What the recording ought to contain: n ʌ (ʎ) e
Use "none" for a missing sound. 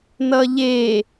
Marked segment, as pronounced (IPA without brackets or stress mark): ʎ